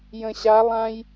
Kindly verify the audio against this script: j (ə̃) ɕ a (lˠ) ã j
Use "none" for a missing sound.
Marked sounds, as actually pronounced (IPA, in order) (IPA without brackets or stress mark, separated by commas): ə̃, lˠ